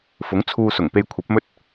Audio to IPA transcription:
f ʊ˨˥ ŋ t͡sʰ uː˧ s ʊ˨˩ ŋ p e˧ j kʷʰ ɐ˨˥ p̚ m ɵ˥ t̚

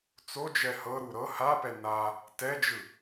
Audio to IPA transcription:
t͡s o d͡ʒ ɛ h ɤ ɾ u ɾ ɤ h a p ɛ n a | t ɛ d͡ʒ ɯ

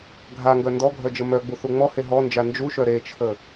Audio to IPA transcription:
ɡʱ a ŋ ɡ œ n d ɔ ɡʱ œ d͡ʒ ə m œ ɡ͡b u θ u ŋ͡m ɔ h e ɦ ɔ n d͡ʒ a n d͡ʒ u ʃ œ ɾ e t͡ʃʰ ə

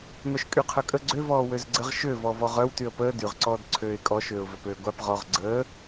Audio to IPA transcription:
m œ ʃ kʼ y qʰ œ kʼ ə ɡ͡ǀ ø v ɔː w ø z ɡ͡ǀ ə ʁ ʃ ø v ɔ v ɔ ʁ œ w t y ə̯ p əː d y ʁ ǀ ɔː d ǀʰ øː ɪ̯ kʼ ɔ ʃ øː ʊ̯ v œ p øː ɡʷ a p ʁ ɔ ʁ ɡ͡ǀ əː

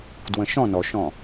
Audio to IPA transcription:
d w ə̃ ʃ ɔ̃ n ɔ ʃ ɔ̃

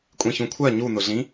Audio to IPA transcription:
kʷʼ ĩ ç ũ kʷʰ ɜ ɲ u n ʊ ɮ ĩ

